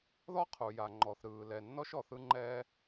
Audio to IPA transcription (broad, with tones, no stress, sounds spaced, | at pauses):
ð ɔ˥ qʰ u˩ j a˩ ŋ͡ǃ ɔ˩ θ ɾ ɯː˩ l ɛ˩ nː ɔ˥ ʃ ɔ˩ θ ɯ˧ ŋ͡ǃ ɛː˧